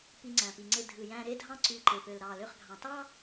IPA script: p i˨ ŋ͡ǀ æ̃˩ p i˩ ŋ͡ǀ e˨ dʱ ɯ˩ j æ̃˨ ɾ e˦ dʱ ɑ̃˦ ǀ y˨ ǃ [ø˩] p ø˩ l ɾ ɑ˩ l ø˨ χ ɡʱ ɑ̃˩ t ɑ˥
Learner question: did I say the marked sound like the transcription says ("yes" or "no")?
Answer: no